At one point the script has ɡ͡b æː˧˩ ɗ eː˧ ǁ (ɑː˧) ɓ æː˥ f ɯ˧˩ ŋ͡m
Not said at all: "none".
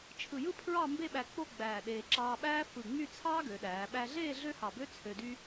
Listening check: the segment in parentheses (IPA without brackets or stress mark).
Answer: ɑː˧